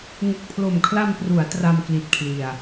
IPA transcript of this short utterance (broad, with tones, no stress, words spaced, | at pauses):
ŋu˨˩k̚pʰlo˨˩mkʰla˧mpru˩˦a̯ tra˧mkli˨˩t̚kʰli˨˩a̯